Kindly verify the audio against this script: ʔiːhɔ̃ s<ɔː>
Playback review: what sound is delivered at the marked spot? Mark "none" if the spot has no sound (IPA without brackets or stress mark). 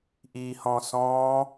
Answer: ɔ̃ː